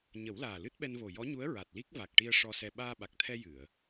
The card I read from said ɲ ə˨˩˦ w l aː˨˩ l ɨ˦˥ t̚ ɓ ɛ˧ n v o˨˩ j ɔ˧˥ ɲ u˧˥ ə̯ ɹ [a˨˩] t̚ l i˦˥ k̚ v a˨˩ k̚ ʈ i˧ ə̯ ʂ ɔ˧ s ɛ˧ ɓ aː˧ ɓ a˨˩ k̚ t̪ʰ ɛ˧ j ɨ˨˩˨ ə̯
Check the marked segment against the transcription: correct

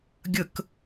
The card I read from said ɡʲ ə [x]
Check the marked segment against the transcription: incorrect: k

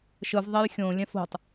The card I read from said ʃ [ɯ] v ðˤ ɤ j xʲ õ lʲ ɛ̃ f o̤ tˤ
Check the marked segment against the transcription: correct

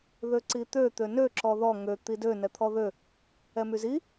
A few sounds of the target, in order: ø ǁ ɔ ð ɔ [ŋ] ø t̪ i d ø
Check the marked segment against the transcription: correct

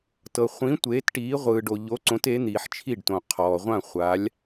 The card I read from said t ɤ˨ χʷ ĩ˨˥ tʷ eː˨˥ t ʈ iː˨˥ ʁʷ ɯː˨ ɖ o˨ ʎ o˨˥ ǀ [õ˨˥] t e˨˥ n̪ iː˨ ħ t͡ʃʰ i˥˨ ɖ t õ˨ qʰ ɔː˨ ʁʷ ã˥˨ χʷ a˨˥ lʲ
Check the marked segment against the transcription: correct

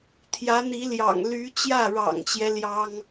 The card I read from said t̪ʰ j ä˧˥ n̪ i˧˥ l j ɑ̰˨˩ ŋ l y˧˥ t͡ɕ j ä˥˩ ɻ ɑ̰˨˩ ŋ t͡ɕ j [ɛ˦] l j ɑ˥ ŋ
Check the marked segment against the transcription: correct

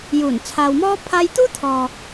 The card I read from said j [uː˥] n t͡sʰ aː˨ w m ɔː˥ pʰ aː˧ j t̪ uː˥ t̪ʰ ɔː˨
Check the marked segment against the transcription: incorrect: uː˨˩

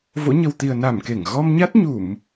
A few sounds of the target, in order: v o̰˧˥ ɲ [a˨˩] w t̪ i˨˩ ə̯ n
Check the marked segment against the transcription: incorrect: ə˨˩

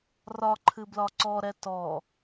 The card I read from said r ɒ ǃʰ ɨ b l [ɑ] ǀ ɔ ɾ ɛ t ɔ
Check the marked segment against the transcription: incorrect: ɒ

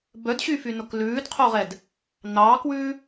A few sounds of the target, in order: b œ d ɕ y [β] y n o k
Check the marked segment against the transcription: incorrect: f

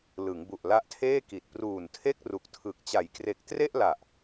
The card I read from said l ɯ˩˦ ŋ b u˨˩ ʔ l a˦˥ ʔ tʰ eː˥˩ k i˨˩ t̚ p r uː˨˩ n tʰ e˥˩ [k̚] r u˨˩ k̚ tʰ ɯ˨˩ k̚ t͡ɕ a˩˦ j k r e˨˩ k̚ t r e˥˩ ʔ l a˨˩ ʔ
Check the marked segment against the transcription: correct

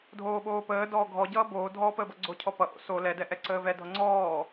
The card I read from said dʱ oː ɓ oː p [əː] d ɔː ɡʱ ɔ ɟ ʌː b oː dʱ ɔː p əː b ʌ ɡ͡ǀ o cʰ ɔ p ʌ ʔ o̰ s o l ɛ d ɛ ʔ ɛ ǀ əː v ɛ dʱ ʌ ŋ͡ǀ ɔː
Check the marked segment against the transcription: correct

